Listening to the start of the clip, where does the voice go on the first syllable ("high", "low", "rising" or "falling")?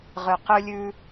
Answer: low